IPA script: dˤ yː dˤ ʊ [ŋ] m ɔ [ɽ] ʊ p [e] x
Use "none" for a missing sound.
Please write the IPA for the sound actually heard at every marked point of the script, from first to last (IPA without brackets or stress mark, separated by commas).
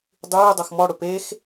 x, ɽ, e